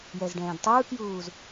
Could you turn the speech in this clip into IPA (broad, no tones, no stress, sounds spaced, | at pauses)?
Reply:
j ɛ z ɖ ɛ̃ː d tˤ ɯː k j uː z